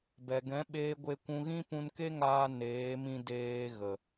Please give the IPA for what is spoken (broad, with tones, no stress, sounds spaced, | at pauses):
b ɛ˨ ɡ ɛ̃˨˦ ɓ eː˧ ɡʷ e˧ kʷ ũ˧ ɣ ĩ˦ p ũ˧ n k e˦ ŋ aː˧ n eː˨˦ m ĩ˧ d eː˧ ɣ ə˨